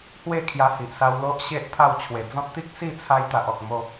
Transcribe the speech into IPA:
h w e˥˧ kʰ j a˧ h i˨ ʔ s a˧ w l o˦ ʔ ɕ e˦ ʔ pʰ a˥˧ w t͡ɕʰ w e˨˩ d͡z ɔ̃˦ t̚ t̪ i˦ k̚ s i˥˧ t͡sʰ a˧ j t̪ a˨ ʔ ɔ˨ k̚ m o˧

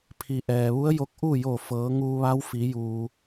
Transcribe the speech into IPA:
pʰ i˩ ʔ ɛː˩ ʋ u˧˥ ə̯ j o˧ k̚ ʔ u˥˨ j o˧˩ f ɤː˩˧ ŋ uː˧ ʋ a˧˥ w f i˩˧ j uː˩

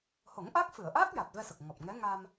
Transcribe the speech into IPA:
h o˨˩˦ ŋ ʔ a˦˥ k̚ f ɨ˨˩˨ ə̯ ʔ a˦˥ k̚ j a˨˩ t̚ v ɛ˧ s ə˨˩ k̚ ŋ ɔ˨˩ p̚ ŋ ɛ˧˥ ŋ a˧ m

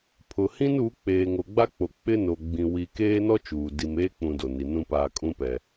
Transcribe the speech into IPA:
pʰ ʊ˨ h ĩ˦ n uː˨˦ k͡p eː˨ ŋ o˨ ɡ͡b a˦ k͡p o˨ k͡p ɪ˦ n o˨ ɡ͡b ĩ˨ w i˨ k eː˦ n ɔ˦ t͡ʃ uː˨ d i˨ m eː˦ k͡p ũ˦ d o˨ n i˨ n ũ˦ p aː˨ kʼ ũ˦ p ɛ˨

